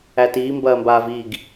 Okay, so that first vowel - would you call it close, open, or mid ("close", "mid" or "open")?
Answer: open